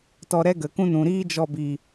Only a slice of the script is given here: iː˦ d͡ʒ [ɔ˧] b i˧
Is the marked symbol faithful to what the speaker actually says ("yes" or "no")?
yes